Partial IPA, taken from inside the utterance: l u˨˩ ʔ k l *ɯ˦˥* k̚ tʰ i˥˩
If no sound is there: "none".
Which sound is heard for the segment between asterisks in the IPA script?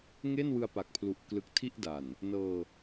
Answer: ɯ˦˥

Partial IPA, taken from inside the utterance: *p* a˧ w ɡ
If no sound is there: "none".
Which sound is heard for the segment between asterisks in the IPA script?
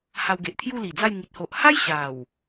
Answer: h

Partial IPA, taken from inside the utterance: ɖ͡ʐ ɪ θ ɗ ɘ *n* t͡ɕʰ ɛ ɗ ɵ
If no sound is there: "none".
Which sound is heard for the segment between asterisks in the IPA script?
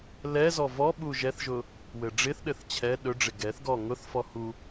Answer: θ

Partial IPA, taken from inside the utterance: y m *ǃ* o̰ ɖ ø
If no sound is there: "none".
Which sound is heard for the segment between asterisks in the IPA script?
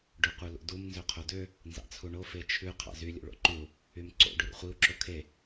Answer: ǀ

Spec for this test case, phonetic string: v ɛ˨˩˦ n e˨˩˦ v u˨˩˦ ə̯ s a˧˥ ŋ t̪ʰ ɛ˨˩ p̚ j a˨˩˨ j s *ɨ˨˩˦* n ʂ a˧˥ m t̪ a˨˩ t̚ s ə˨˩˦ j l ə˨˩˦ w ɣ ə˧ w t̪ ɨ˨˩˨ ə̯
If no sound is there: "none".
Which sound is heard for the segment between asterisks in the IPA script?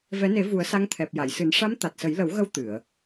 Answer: ɨ˨˩˦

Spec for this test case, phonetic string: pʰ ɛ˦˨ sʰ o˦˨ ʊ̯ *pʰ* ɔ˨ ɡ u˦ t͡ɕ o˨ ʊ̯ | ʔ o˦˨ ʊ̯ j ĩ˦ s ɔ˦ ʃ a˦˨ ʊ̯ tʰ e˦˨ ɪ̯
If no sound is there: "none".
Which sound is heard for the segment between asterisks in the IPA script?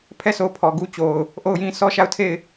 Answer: pʰ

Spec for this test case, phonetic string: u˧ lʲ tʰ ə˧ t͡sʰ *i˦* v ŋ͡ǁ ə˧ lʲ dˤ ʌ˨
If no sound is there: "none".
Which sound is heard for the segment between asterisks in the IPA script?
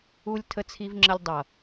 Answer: i˧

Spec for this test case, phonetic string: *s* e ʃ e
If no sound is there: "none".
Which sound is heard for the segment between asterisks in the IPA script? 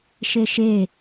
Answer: ʃ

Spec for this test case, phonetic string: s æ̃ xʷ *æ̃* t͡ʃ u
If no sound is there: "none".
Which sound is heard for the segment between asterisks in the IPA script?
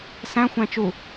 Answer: æ̃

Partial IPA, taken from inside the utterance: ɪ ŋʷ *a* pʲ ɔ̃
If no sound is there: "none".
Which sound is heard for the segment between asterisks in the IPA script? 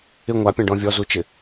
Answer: a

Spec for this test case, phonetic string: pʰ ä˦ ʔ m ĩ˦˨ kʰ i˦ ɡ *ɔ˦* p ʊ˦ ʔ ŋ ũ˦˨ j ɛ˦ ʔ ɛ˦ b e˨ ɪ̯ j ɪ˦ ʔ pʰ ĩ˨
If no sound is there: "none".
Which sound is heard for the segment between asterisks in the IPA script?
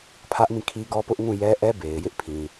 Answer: ɔ˦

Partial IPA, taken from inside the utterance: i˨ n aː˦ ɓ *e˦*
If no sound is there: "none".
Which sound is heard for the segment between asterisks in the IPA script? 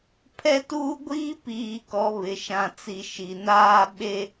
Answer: e˦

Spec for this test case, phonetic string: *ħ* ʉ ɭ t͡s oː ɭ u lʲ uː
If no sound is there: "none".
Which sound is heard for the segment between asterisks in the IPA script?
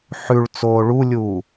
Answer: ħ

